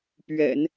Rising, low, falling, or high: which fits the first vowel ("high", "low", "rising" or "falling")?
low